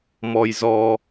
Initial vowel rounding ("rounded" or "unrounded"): rounded